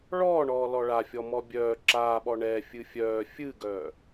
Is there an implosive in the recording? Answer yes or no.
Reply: yes